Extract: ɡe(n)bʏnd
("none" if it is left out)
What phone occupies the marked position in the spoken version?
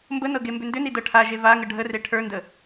m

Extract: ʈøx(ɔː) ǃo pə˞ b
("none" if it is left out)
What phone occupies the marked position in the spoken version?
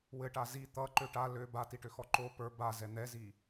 ɔ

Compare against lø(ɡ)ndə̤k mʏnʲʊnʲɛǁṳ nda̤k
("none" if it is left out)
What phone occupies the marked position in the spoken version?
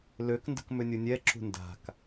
k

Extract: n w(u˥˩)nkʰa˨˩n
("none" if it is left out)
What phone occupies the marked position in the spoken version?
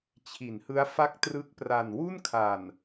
u˥˩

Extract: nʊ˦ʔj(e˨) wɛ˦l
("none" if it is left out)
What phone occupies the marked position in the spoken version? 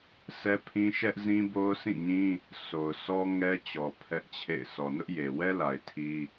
e˨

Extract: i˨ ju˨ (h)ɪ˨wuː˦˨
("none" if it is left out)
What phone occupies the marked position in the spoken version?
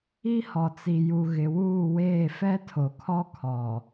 ɣ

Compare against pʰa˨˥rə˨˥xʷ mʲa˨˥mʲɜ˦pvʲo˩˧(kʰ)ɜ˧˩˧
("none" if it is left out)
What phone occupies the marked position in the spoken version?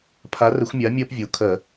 kʰ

